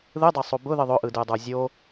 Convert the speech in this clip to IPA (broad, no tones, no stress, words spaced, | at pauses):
ðɯdˤasˤo bʊðɯ ðˤʊʔɯdɯdˤə˞ zʲo